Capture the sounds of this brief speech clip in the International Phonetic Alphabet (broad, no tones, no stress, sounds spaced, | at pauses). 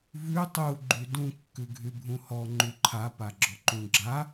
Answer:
v ʉ tˤ u ɡ͡ǃ y d ũ kː ʉ ɡʱ y bʱ ũ h ɔ ŋ͡ǃ ʉ ǃʰ a p a ɡ͡ǁ ɔ ǃ ũ ɡ͡ǁ a